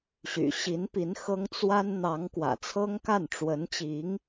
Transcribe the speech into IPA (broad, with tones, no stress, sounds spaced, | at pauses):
ɕ y̰˨˩ ɕ i˧˥ n p i˧˥ n x ɤ˥ ŋ t͡s w a˥ n n̪ ɑ˧˥ ŋ k w ä̰˨˩ t͡sʰ ɤ˥ ŋ k a˥˩ n ʈ͡ʂ w ə˧˥ n t͡ɕ i˧˥ ŋ